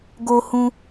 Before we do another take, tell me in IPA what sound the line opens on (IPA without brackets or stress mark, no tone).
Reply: ɡ